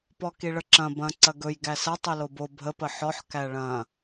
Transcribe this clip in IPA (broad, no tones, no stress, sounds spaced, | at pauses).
p ɔ k i ɭ ə ǁ ɐ̃ b ɐ̃ ǀ ɐ ɡ ɵ j ɡ æ s ɐ tˤ ɵ l o b o bʱ ə p ə ħ ɔ ħ k æ ɭ ɐ̃